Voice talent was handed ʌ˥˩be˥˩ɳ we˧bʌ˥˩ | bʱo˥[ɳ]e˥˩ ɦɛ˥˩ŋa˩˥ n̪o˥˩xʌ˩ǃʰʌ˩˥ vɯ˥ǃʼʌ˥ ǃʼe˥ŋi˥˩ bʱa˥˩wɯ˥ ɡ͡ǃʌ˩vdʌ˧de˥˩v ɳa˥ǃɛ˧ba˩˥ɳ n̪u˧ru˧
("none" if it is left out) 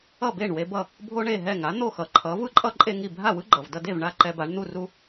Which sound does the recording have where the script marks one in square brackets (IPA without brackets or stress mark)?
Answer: ɳ